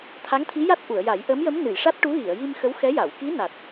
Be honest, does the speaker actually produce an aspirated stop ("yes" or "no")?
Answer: yes